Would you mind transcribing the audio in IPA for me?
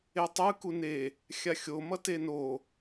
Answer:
etˤɯ kune | xʲaxʲo mʌteno

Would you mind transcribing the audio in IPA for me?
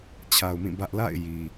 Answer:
t͡ɕʰa˨ʊ̯mĩ˦˨bä˦ʔ la̰˦˨ɪ̯ ji˨

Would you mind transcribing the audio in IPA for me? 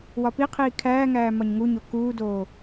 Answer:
wɒpiqʰiː kʰæːŋæː mɒɲŋuɲo kuːdoː

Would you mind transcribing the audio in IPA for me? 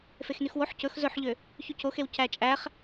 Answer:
fexnyxwoħ cɵx zɵħʎø | çycoxew cæt͡ʃʼæχ

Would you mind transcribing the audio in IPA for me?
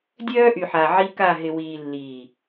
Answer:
dʲœː˦ʔy˨ħa˨ ʕi˦ka˦˨ ɦɪ˨wiː˨ lːiː˨

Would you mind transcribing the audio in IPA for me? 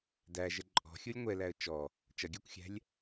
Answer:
dæʒə ǃʼɔ̤xʲʊlʲ ŋʷɛlæə̯ t͡ʃɔ | t͡ʃʌɡʲɜkʷxʲæ̤lʲ

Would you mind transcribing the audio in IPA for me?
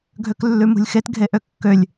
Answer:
ɡʱøklːʉmṳlʲxet ɡʱeʔøkːølʲ

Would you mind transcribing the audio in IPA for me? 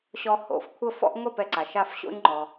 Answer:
ɕɔ˧ho̰˩˥fkʷʰə˥˩fɔ̰˥ʔ ŋʷɛ˥˩pɛ˩ǀa˩ʃ a˥˩fɕo̰˥ɲŋ͡ǃɔ˩

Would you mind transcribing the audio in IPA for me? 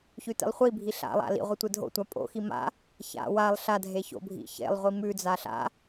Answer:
çʉtḭlˠχʷibʱi ɬa̰lˠa̰ lḭ ʁʷitʷedʱo̰tʷa pʼo̰xi ma̰ | ça̰ walˠ ɬadʱe ço̰bʱḭ çḛlˠʁʷi mʉd͡za ɬa̰

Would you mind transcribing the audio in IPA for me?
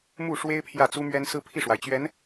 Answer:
mu˥˩ʂwe˥ɪ̯ pʰjä˥˩t͡su˥mɥɛ˥n sɹ̩˥pʰi˥˩ʂwa˩ɪ̯t͡ɕɥɛ˧˥n

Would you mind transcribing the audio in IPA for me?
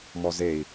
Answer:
mɔzei̯

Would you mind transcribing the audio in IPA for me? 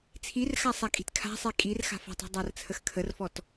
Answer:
t͡sʰirxasˤakʼi̤t kʰa̤sˤi kʼirxa̤f a̤tˤi̤dˤart͡sʰəx kʰərfɔt

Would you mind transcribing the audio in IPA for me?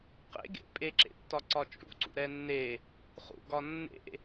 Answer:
qḛɡḛ pʼeǁḛtːɒǀɒ t͡ʃʼṵǀṵɾɛ nːe | χṵɡɒ nːḛ

